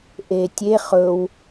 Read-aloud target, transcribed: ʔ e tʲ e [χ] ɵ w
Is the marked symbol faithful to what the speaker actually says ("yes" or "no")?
yes